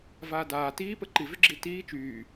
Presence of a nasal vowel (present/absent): absent